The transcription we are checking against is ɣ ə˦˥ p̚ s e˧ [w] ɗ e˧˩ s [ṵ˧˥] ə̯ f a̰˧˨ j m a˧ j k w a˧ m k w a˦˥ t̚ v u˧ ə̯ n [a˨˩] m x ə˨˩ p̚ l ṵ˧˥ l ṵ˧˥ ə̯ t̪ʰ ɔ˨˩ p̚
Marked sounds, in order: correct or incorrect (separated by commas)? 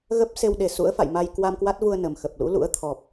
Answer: correct, correct, incorrect